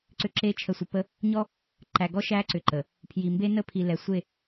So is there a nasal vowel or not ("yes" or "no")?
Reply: no